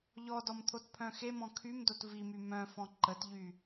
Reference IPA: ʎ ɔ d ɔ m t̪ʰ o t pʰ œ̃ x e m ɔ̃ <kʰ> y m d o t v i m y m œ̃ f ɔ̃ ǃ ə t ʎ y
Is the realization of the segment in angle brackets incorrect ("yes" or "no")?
no